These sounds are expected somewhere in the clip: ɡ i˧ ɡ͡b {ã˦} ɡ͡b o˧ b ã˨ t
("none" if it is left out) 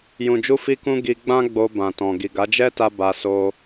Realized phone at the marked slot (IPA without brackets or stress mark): ã˦